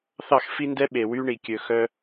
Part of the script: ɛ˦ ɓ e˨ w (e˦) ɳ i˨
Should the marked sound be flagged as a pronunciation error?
yes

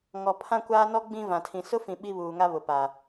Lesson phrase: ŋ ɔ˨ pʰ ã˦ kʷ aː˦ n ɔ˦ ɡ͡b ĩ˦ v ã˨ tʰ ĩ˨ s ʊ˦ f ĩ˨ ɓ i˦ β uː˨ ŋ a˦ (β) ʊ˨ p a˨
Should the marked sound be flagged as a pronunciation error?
no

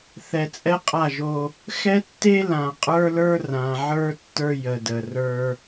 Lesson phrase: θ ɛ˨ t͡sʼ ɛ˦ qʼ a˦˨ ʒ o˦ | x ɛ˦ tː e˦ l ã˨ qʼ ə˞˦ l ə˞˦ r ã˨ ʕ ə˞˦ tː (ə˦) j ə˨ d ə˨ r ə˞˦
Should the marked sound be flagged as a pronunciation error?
yes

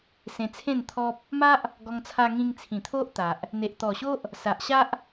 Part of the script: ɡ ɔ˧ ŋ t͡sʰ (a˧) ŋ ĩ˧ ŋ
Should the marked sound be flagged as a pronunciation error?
no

